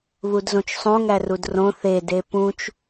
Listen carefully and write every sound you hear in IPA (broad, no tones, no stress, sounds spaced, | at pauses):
β u d z õ t͡ʃ sˤ õ ŋ æ r u d r õ θ e d e p ũ t͡ʃ